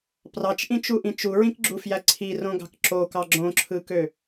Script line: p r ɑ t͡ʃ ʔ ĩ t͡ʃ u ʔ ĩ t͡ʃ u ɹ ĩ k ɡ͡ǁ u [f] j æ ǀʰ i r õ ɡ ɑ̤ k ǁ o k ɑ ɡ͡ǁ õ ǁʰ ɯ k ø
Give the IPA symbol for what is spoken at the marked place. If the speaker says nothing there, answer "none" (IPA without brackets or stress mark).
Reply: f